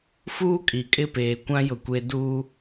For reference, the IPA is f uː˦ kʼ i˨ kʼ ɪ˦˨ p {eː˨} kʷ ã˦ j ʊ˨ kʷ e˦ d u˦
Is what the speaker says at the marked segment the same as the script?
yes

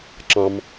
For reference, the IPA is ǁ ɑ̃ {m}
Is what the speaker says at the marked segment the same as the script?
yes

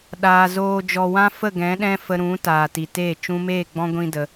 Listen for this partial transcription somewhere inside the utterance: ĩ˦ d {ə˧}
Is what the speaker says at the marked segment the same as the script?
yes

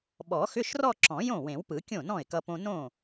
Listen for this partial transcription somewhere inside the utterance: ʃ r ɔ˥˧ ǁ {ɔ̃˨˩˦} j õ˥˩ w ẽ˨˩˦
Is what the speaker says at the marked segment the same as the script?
yes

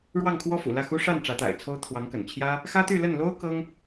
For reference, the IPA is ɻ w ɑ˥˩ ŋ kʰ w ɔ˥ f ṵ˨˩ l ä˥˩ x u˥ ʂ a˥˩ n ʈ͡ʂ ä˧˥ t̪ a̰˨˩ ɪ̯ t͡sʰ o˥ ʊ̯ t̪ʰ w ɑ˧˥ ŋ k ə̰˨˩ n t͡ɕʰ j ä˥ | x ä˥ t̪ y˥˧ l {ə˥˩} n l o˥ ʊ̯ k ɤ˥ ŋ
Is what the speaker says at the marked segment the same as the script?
yes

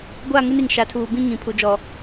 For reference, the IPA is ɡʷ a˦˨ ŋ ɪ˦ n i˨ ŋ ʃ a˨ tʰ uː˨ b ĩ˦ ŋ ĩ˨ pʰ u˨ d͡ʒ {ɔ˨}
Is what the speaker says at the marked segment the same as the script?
yes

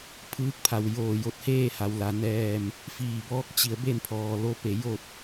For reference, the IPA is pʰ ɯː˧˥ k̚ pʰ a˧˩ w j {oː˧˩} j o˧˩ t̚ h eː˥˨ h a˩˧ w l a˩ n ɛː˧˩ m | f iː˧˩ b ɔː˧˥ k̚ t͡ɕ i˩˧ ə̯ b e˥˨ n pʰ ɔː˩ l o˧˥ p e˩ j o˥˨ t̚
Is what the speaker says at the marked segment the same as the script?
yes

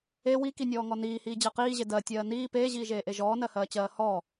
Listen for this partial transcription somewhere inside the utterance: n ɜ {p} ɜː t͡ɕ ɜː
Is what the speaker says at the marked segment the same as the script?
no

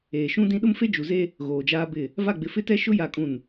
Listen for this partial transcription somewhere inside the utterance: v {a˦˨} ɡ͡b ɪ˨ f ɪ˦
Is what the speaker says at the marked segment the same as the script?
yes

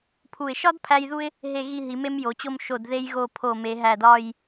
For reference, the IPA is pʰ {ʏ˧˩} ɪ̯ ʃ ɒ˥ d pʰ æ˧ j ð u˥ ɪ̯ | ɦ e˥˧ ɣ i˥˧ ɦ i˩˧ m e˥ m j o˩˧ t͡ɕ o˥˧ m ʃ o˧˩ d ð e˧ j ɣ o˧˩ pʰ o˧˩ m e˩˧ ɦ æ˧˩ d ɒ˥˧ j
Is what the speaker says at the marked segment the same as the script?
no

